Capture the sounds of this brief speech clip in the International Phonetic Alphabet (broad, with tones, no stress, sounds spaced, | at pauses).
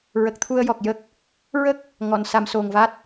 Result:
ɹ ə˨˩ k̚ t̪ʰ u˧ ə̯ j ɔ˨˩ k̚ j ə˦˥ k̚ | ɹ ə˦˥ k̚ | ŋ ɔ˨˩˨ n s a˧ m s o˨˩ ŋ v a˦˥ t̚